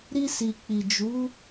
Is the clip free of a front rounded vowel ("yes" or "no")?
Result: yes